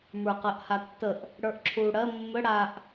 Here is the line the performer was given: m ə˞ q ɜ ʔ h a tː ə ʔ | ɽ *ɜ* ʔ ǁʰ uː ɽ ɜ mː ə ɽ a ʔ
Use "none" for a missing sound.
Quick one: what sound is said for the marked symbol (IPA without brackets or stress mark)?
ə˞